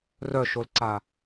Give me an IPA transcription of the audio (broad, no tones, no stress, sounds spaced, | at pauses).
r œ ʃ o l ǀ a